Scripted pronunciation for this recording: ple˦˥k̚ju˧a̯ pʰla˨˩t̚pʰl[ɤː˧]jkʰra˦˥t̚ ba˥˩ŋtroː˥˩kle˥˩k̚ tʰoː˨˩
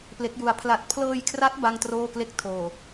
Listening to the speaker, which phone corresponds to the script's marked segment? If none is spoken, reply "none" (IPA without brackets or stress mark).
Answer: ɤː˧